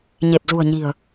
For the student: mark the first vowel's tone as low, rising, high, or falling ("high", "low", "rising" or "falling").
low